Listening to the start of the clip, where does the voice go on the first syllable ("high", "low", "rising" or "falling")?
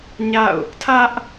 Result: falling